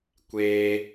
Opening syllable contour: high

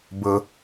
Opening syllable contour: low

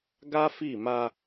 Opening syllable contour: high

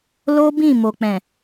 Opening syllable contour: high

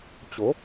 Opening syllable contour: rising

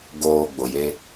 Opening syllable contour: low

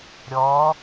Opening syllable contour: rising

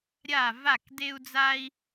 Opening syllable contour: falling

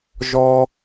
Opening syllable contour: high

